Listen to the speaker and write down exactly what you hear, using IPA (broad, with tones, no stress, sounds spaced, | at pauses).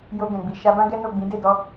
j o˧ ɡ ɛ̃˨ ɡ͡b i˨ ʃ a˧ b ã˦ ɡ ɛ˦ n o˦˨ ɡ͡b ĩ˨˦ d e˦˨ d ɔ˧